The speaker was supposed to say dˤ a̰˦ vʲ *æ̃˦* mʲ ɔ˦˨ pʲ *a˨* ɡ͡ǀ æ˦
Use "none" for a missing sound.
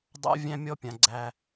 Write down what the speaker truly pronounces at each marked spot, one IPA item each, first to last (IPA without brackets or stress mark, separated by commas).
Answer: æ̃˦, ã˨